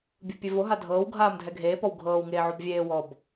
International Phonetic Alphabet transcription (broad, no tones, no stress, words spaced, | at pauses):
bʲɯpʲevo ɦadʱɤːw ɡʱaːmdʱɛɡʱeː pɔwɡʱɤːw ŋeːʕobvʲeː wɔb